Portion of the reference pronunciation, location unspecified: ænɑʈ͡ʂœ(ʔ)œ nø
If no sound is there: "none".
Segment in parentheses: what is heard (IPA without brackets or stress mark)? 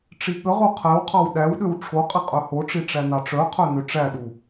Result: qʰ